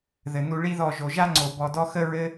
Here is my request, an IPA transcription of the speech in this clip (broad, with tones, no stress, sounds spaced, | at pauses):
ð ɘ˨ n u˧ ɭ i˦ ð ɔ˦˨ ʒ o˨ ʒ a˦ ŋ͡ǀ o˨ b ɔ˧ d ɔ˦ x ə˦ ɹ ɘ˦